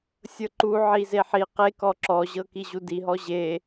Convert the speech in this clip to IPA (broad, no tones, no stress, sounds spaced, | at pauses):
sʲ ɤ ǃ u ʕ i z e ħ i q e k ɔ ǁ ɔ ʑ ɤ k i ʑ u d i ɦ ɔ ʑ e